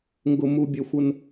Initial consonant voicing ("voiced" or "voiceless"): voiced